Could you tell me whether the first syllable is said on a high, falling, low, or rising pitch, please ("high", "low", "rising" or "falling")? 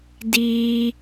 high